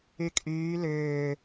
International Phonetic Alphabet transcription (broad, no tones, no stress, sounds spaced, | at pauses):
y kʼ yː l ʏː